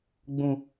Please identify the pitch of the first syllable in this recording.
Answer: low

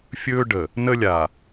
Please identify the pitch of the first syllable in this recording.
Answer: high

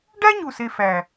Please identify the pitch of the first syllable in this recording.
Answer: high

